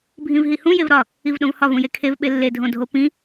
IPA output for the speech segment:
bʱ ĩ v ɦ i h ũ j e v ɾ ɒ | i v ɗ õ v h ɒ v ũ j e kʰ e v ɓ e lː e dʱ õ dʱ o p ĩ

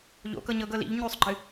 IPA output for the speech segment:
ʎ o̰ k ɤ ɲ ɤ ɡ ɤ l ḭ ʎ ɲ ʉ sˤ ɡ͡ǃ ɨ

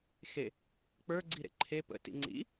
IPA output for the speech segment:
x e | k͡p ə˞ ɡ͡ǀ i ɾ ḛ ǃʰ e p ə̰ t ḭ ŋ͡ǀ ḭ

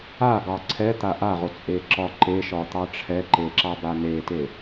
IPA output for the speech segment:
a ɡ ɑ ǀʰ ɛ t̪ a ʔ a ʁ o t͡sʼ e ǁ ɒ ǃ e ʃ ɒ t̪ ɑ ʈ͡ʂʰ ɛ ǃ e ǁ ɑ b a n e t e

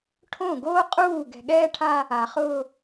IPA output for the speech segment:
ʈʰ õ˦˨ ɡ oː˦ qʼ uː˦˨ ɡ ɛ̤˨ ɠ ɛː˦ ʈʰ a˦ | a˨ χ ʊː˦

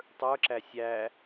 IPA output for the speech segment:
tˤ ə˞ ǁ æ sʲ æ

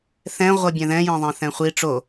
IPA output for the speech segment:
θ ɛ̃ ʁʷ ʌ bʲ ɛ̃ ð ɛ̃ j ẽ ðˤ ɛ̃ θ ɛ̃ χʷ i ʈ͡ʂ o

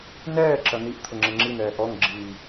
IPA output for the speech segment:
n ɛː ǁ ɐ n̪ i ʔ t̪ʰ ʊ ŋ͡ǁ e ŋ͡ǁ i n̪ ɛː ʔ ɔ ŋ ɡ͡ǁ iː

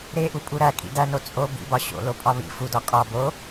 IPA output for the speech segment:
ɾ e ʔ u pʼ u ɾ æ kʼ ḭ d æ n o t͡sʼ o b ḭ b ɒ ɕ o̰ l o pʼ ɒ β ḭ f u d ɒ kʼ ɒ b o

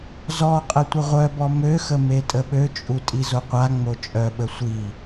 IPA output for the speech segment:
z ɔ qʼ ə tʷ ə ʁʷ œ b ɔ m ø x ə m e tʼ ə ɓ ø t͡ʃʼ u tʼ i z o qʷ a ŋ͡m o t͡ʃʼ œ ɓ ə sʷ i

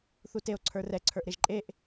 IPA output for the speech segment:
θ u t e o̯ ǀʰ ə˞ r ɛ ǀʰ ə˞ ʔ ɾ e ʒ ǃʼ e ʔ

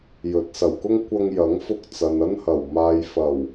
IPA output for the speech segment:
j ɵ˨˥ t̚ s ɐ˨˩ w k ʊ˥ ŋ kʷ ɐ˧ ŋ j ɐ˨˥ ŋ f ʊ˧ k̚ t͡s ɐ˨ n ɐ˥ n h ɐ˨˩ w m aː˨ j f ɐ˨˩ w

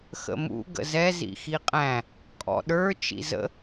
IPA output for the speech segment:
x ə̰ m ṵ ɡ ə̰ z ɛ z ḭ x i qʼ æ̃ | kʼ ɔ̰ ɗ ə˞ t͡ʃ ḭ z ə̰

